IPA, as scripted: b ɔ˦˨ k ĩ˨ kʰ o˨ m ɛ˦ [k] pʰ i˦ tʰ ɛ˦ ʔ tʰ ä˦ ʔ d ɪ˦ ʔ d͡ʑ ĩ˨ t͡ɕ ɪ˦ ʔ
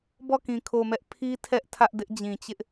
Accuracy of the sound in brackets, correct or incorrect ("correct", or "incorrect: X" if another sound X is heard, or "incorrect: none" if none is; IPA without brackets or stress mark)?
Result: incorrect: ʔ